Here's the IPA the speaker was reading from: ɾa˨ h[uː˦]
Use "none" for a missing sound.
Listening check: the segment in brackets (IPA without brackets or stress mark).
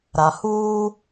uː˦